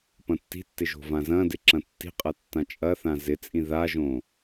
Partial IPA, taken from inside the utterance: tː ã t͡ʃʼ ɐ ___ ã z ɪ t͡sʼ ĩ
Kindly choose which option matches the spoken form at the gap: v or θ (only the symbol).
θ